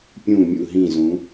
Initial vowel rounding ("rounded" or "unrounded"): rounded